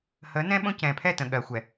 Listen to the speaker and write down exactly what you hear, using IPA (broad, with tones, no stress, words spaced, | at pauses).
həː˨˦nɛ̃˦ɓõ˦ cɛ̃ː˨pʰɛ˦˨tə̃˨ ɠɜ˨xʷɛ˨